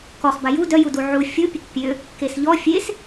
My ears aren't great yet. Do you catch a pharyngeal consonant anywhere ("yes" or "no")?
yes